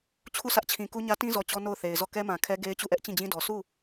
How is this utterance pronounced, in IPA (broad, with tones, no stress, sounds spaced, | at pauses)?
t͡ɕʰ u˦˨ s ä˦ ʔ t͡ɕʰ ĩ˨ k u˦ ɲ ä˦ t ĩ˦ z ɔ˨ t͡ɕ ɔ˦ n o˦˨ ʊ̯ θ e˨ ɪ̯ z ɔ˦˨ k ɛ˦ m ã˨ kʰ ɛ˦ ɡ e˦ ɪ̯ t͡ɕ u˦˨ ʔ ɛ˦ ʔ t͡ɕ ĩ˦˨ d͡ʑ ĩ˦ d ɔ˨ sʰ u˦˨